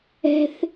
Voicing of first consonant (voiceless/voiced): voiceless